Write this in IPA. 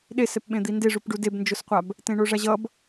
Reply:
ɗ e s ɛ p ɓ ẽ d̪ i n d e ʐ u p ɖ u d e b n d͡ʒ o s qʷ a b | t ẽ ɳ o ʐ a ʑ ʌ b

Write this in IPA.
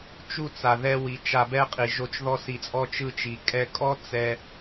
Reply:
t͡ʃ u˦˨ t͡s a˨ ð ɛ˧ w i˨ t͡ʃ a˧ b ɛ˦ qʼ i˨ ʒ o˧ t͡ʃ ð ɔ˧ s i˨ t͡sʼ ɔ˧ t͡ʃ ɯ˧ t͡ʃ i˨ kʼ ɛ˧ kʼ ɔ˦ t͡s ɛ˧

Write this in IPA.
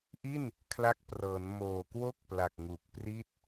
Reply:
ʔ i˥˩ n | kʰ l a˦˥ k̚ p r ɤː˩˦ n m oː˨˩ k w o˥˩ k̚ p l a˨˩ k̚ ŋ u˨˩ k̚ p r i˥˩ t̚

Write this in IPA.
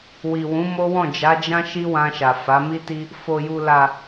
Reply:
w i˨ w ũ˨˦ m o˦ w ɔ̃˦˨ d͡ʒ a˨˦ d͡ʒ ã˦ ʃ i˦ w ã˧ ʃ a˨ f a˨˦ m i˦ t i˦ | f o˨ j u˨ l a˨

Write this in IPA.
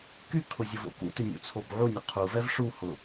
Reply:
k y kʰ ʊ zʲ ʊ v o̰ k ṵ t ʏ nʲ ṵ t͡sʰ o b ʕ u nʲ ʊ qʰ u v ɛ v ʂ u h ʊ

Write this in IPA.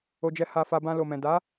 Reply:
o˧ d͡ʒ ɛ˧ h a˧ f a˧ b ã˧ l o˨ m ɛ̃˨ d a˨˦

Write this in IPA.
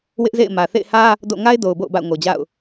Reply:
w ɪ˦ ʔ z ḛ˦˨ ɪ̯ m ä˨ θ ḛ˦˨ ɪ̯ h ä˦ | d o̰˦˨ ŋ a˦ ɪ̯ d o˨ ʊ̯ b o̰˦˨ ʊ̯ b a̰˦˨ ʊ̯ ŋ o˨ d͡ʑ a̰˦˨ ʊ̯

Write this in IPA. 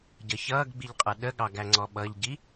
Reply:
ɟ ʌ ç ʌː ɡ ɡ͡b i ʎ qʼ ʌ ɗ ə ɠ ɑ ɡ æ ŋ͡ǀ ɔ ɓ ʌ ʎ ɟ i

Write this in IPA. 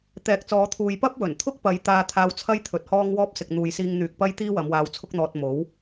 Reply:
t̪ ɛː˨˥ k̚ t͡s ɔː˨˧ t̪ʰ uː˨ j p ɐ˥ p̚ w ɵ˨˩ n t̪ʰ ʊ˥ k̚ p ɐ˨˧ j t̪ aː˧ t̪ʰ aː˧ w t͡sʰ ɐ˥ j t̪ʰ ɵ˨ t̚ h ɔː˥ ŋ w ɔː˥ p̚ s ɪ˨ k̚ n̪ uː˨ j s iː˧ ŋ n̪ yː˨ k̚ p ɐ˥ j t̪ iː˥ w ɐ˨˧ m w aː˧ w t͡sʰ ʊ˥ k̚ n̪ ɔː˧ t̚ m o˨˥ w

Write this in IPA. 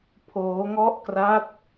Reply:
pʰ oː˦˥ ŋ ɔ˥˩ ʔ k r a˥˩ t̚

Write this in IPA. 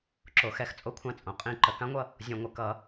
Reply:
ǁ o˩˥ x ɛ˨˩˦ x t͡sʼ o˦ kʷʰ ã˦ t͡sʼ õ˩˥ qʼ ĩ˨˩˦ ǃ ə˨ k ã˦ ŋʷ ʌ˥˨ | zʲ õ˨ ŋʷ ə˩˥ k ʌ˨˩˦

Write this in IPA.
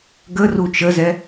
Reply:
ɡ ə r u t͡ʃ ə z ɛ

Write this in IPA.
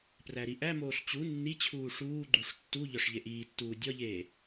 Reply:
p r æ ɾ i ʔ æ m oː ɬ t͡ɕ u nː i t͡ɕʰ uː ʂ uː ɡ͡ǃ u ʂ tː u ʎ ɒ ʂ ʎ e ʔ iː tː uː dʲ ɒ ʎ eː

